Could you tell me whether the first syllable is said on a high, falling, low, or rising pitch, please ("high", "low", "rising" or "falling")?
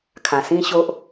low